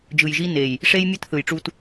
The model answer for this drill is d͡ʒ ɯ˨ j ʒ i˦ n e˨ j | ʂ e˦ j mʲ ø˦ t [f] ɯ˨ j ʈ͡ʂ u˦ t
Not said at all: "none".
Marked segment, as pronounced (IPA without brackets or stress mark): θ